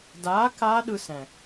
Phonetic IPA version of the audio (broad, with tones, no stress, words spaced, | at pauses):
daː˨˥ kaː˦˥ɗɯ˧sɛ̃˨˩